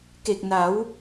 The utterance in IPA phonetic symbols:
k e˨˩ k̚ n a˩˦ w

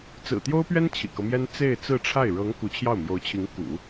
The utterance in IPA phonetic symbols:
t͡s ɹ̩˨˩ t̪ j o˥ ʊ̯ p ɥ ɛ˥ n t͡ɕʰ ḭ˨˩ k ɤ˦ m j ɛ˥ n t͡s e˥˧ ɪ̯ t͡s ɹ̩˥˧ ʈ͡ʂʰ a˥˩ ɪ̯ ɻ ɤ˧˥ ŋ k u˧˥ t͡ɕʰ j ɑ˥˩ ʊ̯ m j o˧˥ ʊ̯ t͡ɕʰ i˧˥ ŋ k ṵ˨˩˦

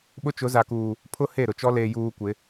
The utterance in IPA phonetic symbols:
ɓ ʊ˦ t͡ʃ ʊ˨˦ z a˨ k uː˨ | pʰ ʊ˦ h e˦˨ ɾ ʊ˨ t͡ʃ ɔ˦ l eː˨ j uː˨ kʷ ɪ˨˦

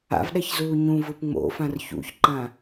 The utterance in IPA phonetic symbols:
a̰ v ɗ ɛ ç z uː ɲ ũ v ɯ p ŋ͡m o̰ f ã r ç ṵ ç ǃ ã

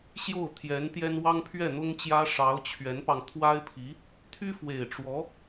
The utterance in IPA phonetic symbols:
ɕ j o˥˩ ʊ̯ t̪ʰ j ɛ˧˥ n t̪ j ɛ˥ n w ɑ˥ ŋ pʰ ɥ ɛ˥˩ n̪ ʊ˥ ŋ t͡ɕ j ä˥ ʂ ɑ˧˥ ʊ̯ t͡ɕʰ ɥ ɛ˧˥ n p ɑ˧ ŋ t̪ʰ w a˥ ɪ̯ pʰ i˧˥ | t̪ʰ y˥ f w e˨˩ ɪ̯ ʈ͡ʂ w ɔ˧˥

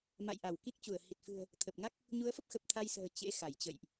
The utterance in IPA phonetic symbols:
m a̰˧˨ j ʔ a˧˩ w k i˦˥ k̚ t͡ɕ u˧˩ ə̯ h i˨˩ t̚ f ɨ̤˨˩ ə̯ | t̪ʰ ə˨˩ p̚ ŋ a˦˥ k̚ | ɲ u˨˦ ə̯ f ə˦˥ p̚ x ə˨˩ p̚ t̪ʰ a˧ j s ə̤ː˨˩ t͡ɕ ḛ˧˥ x a˧˩ j t͡ɕ ə̰˧˨ j ʔ

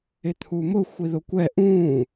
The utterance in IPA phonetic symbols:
ɪ t̪ʰ u m ʊ xʷ i ð ʊ kʷ ɛ ʔ ũː

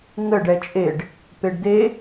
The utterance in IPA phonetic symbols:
ŋ ə ɖ ɛ t͡ʃʼ e ɖ | p e ɖ d̪ e

